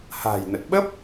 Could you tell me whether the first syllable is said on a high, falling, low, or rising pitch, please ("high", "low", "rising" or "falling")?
low